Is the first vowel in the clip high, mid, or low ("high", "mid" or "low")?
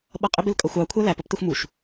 mid